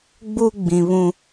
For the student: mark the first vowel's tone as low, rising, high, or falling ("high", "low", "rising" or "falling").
high